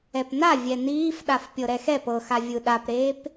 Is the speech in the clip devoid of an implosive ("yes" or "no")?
no